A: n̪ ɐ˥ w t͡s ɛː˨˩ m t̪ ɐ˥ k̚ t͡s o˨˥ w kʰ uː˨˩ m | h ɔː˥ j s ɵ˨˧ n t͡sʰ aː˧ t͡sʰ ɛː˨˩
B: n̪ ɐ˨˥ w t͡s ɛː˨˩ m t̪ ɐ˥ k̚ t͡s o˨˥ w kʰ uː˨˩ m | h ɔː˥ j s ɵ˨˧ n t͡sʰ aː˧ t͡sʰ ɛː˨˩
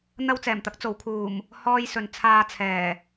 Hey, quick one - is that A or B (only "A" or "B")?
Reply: A